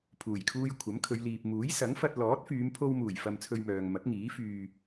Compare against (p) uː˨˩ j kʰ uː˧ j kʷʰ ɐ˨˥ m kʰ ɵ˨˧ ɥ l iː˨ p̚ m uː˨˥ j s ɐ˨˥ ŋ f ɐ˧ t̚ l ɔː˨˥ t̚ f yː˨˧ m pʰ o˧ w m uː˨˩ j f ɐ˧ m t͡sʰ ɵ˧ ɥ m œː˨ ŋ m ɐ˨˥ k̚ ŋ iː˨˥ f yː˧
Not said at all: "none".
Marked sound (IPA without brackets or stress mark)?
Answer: pʰ